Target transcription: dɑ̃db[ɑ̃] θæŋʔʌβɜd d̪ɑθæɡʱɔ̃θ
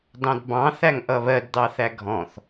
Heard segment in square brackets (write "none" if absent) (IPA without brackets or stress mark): ɑ̃